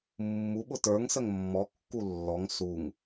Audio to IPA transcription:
mːu ɓʊtə˞ŋsəŋ mːɔkːu lːɔŋ suŋ

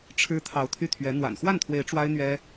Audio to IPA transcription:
ʈ͡ʂʰɻ̩˥ t̪ʰɑ˧˥ʊ̯t̪ʰy˥˩t̪ʰɥɛ˧˥ n̪wa̰˨˩nxwa˥˩nt̪ʰwe˧˥ɪ̯ ʈ͡ʂwa˥ɪ̯n̪ɥɛ˥

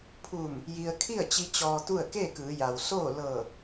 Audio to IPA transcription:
pʰuː˧˩m | ji˧ə̯ kʰi˥˨ə̯t͡ɕi˧ t͡ɕɔː˧t̪u˥˨ə̯ keː˥˨kɯː˩˧ja˩w soː˥˨ lɤː˧˩

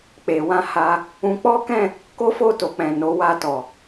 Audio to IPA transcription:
k͡pe˨wã˧ ha˧ | ũ˧k͡pɔ˦kɛ̃˦˨ | ko˦fo˦˨to˨ k͡pɛ̃˨ no˨˦wa˧ tɔ˨

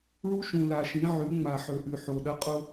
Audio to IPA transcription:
ɭu˦ʃũ˨la˨ʃĩ˨˦ ʕʉ˨˦ŋ͡ma˨ħɵ˨ʔʉ˨ ħo˨ɗɐ˦qʼo˦

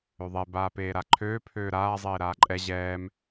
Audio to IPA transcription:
øðˤe baːpeːɾaǃʰøː pʰøːɾaː zˤeːɾaːǃʼɛ ʑɛːm

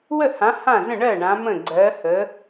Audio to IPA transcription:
wə˥˩hã˨˥ hã˥˩zə̃˥˩ ɳɜ˥˩ ɳã˨˥mə̃˥˩ ɡ͡ǀɜ˨˥ hə˨˥

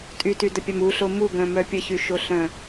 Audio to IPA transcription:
tʼytydəpʲam uɬo muɡœ̃mœ pʲəçyʃoɬœ̃

